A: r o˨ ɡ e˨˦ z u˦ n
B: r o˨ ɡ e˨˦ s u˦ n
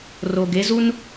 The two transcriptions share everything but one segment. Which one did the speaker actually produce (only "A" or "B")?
A